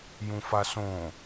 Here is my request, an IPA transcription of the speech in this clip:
j ũ f a s õ

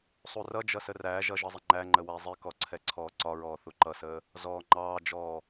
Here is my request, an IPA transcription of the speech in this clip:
sˤ u r ʌ d͡ʒ ʌ s ə r æ ʒ ʌ ʒ ʌ zˤ ɪ ŋ͡ǃ æ ŋ͡ǃ ə w æ zˤ ɪ k ɔ ǀʰ ɛ ǀʰ ɔː ǀ ɒ ɹ ɔː θ u ǃ ʌ s əː | z ɔː ŋ͡ǃ ɑː d͡ʒ ɔː

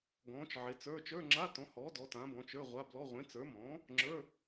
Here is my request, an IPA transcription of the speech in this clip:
ɡ ɔ̃ː˨˥ t͡ʃ ʕ e˨˥ t͡s ə˞˧˥˧ t͡ʃ ə˞˧˥˧ ŋ͡ǁ a˧˥˧ t ɔ̃˨˥ h ɔː˨˥ d ɔ˨˥ t ã˨˥ b ɔ̃˨˥ t͡ʃ ə˞˧˥˧ ʁʷ a˧˥˧ b l ɔ˧˥˧ ʁʷ ẽ˨˥ t͡s ə˞˨˥ m ɔ̃ː˨˥ | ŋ͡ǁ ə˞˧˥˧

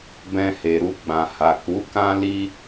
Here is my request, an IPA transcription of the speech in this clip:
b ɛ̃˧ h e˨ ɾ u˧ ɡ͡b ã˨ h a˨ k u˨˦ k ã˦ l i˦

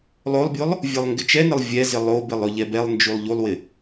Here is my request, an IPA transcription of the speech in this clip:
lˠ o lˠ bʲ o lˠ | vʲ ɛ lˠ ŋ ɡ ɪ t͡ʃ ɛ n ɪ lˠ vʲ ɛ z ɪ lˠ o b ɪ lˠ ɵ ʎ ɛ b ɛ lˠ n d͡ʒ u lˠ ʎ u lˠ w ɪ

